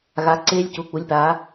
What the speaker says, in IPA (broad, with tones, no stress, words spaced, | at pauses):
ɣa˩˧ǀeː˧lʲcu˩˧ k͡pu˩˧lʲpaː˩˧